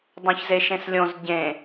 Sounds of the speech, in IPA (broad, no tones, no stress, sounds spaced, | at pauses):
dˤ õ ç z e ʃ ẽ s lʲ õ z ɟ ẽ